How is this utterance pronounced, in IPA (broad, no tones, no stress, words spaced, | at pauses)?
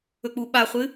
ɵk͡puɓaχʷɨ